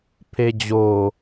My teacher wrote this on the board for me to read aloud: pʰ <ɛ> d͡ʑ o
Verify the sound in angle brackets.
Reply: incorrect: e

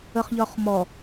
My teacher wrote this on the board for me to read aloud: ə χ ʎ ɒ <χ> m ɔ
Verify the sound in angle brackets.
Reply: correct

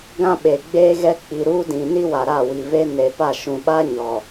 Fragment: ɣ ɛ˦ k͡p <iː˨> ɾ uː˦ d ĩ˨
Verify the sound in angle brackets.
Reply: incorrect: i˨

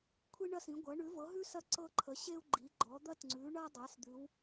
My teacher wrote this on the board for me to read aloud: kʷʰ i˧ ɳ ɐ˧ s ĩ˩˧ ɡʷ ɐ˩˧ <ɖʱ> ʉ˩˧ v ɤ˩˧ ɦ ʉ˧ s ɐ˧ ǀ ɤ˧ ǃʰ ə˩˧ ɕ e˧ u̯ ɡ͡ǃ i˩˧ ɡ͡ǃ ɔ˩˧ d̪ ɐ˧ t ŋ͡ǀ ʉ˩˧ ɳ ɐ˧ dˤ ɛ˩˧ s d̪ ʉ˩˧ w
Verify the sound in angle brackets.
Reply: incorrect: ɳ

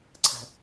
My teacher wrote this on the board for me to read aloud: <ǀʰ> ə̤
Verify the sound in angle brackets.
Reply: correct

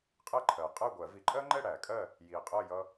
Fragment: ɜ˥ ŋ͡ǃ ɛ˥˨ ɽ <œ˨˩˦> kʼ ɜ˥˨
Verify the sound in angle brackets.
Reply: incorrect: æ˨˩˦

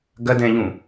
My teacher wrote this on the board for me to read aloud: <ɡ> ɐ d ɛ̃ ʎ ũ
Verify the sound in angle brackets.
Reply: correct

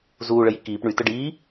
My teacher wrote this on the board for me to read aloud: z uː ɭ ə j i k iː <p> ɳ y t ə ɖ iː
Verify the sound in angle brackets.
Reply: correct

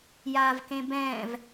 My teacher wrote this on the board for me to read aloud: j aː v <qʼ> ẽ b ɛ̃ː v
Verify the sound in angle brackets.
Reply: incorrect: k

